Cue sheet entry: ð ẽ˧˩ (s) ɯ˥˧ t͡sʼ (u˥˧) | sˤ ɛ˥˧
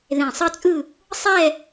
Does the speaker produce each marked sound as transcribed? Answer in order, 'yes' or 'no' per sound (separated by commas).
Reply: no, no